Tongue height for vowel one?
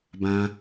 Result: low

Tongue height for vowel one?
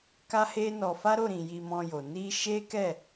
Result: low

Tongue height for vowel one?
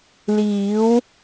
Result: high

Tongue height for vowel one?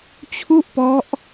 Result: high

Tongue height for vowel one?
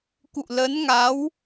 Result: high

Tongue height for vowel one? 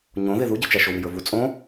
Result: mid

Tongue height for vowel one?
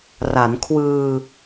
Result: low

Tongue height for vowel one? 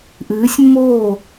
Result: high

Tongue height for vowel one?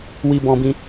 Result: high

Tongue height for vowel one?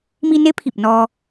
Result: high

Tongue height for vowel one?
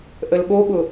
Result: mid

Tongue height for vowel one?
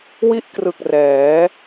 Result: high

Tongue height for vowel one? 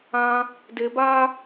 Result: low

